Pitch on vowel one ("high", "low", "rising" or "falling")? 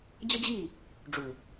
high